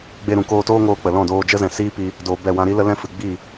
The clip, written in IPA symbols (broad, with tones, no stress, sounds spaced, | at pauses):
ɡ͡b e˧ ɾ ũ˨ k oː˧ t oː˦ ŋ oː˧ k͡p ə˨ l ɔ̃˦˨ d oː˧ d͡ʒ ə˦ z ɛ̃˨ s iː˦ p iː˧ | d oː˧ b ɛ˦˨ w ã˧ ɾ i˦ l ə˦ l ɛ̃˦ f ɨ˨ ɡ͡b iː˦˨